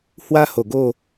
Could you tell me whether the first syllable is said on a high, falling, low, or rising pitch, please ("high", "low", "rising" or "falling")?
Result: high